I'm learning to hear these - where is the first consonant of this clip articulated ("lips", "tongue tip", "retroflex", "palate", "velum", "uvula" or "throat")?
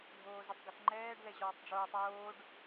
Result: retroflex